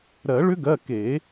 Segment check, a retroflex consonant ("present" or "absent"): present